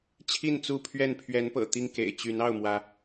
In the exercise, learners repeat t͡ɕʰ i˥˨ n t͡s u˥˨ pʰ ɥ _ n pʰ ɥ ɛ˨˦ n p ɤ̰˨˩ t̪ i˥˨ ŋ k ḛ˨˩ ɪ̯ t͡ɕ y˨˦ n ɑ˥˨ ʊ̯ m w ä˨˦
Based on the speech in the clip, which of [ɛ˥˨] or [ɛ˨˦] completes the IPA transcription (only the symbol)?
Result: ɛ˥˨